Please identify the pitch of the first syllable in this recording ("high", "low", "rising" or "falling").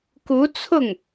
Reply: rising